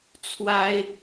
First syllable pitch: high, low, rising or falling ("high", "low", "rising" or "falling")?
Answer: high